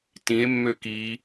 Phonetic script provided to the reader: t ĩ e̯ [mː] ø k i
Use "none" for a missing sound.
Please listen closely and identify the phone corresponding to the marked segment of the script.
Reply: mː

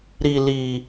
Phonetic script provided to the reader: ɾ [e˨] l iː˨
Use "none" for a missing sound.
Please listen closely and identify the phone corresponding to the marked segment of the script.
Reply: i˨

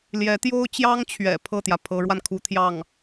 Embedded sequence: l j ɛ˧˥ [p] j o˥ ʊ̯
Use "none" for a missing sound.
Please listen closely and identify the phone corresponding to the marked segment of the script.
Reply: t̪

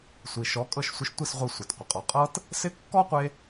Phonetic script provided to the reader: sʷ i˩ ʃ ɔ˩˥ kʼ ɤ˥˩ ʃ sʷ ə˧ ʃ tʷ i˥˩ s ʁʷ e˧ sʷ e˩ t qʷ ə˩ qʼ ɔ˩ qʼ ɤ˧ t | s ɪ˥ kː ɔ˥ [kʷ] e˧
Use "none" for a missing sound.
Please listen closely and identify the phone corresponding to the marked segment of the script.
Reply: qʷ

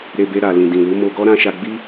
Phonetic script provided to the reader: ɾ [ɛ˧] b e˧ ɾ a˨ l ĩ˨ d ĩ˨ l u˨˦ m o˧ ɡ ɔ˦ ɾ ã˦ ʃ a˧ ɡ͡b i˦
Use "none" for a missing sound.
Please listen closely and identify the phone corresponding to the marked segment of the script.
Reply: e˧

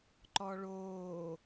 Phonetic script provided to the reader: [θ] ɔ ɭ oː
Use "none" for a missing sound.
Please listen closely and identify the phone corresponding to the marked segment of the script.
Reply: ǃ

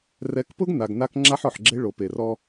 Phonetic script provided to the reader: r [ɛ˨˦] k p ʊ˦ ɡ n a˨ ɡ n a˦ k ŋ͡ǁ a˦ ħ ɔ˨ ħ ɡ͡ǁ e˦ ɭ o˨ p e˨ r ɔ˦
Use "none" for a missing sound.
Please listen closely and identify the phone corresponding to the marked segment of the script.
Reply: ɛ˨˦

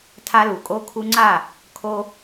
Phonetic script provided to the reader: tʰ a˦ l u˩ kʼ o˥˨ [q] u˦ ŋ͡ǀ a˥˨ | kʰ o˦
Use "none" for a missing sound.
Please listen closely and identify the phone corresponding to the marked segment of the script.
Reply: kʰ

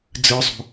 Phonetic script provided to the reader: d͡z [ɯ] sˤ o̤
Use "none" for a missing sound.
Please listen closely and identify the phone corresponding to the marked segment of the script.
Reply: ɯ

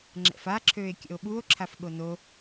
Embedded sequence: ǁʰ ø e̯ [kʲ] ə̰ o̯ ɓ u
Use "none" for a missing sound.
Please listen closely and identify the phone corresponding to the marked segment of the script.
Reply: kʲ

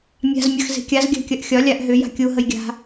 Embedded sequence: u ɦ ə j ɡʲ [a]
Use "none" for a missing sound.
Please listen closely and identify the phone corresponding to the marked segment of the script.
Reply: a̤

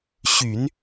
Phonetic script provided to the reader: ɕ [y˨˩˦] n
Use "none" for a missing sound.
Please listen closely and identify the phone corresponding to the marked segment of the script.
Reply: y˨˩˦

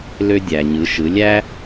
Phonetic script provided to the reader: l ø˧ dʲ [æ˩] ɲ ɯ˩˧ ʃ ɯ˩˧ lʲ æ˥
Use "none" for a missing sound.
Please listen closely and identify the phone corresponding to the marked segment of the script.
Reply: æ˩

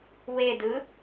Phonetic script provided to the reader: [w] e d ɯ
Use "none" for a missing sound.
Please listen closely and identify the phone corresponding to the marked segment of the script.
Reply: w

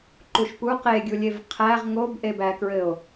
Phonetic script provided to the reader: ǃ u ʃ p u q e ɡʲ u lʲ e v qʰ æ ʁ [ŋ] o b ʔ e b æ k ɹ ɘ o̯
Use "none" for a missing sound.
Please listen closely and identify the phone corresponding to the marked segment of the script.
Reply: ŋ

